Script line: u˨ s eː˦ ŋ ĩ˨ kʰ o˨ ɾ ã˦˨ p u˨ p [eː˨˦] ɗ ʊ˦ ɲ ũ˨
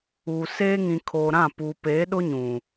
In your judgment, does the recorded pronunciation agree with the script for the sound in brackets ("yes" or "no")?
yes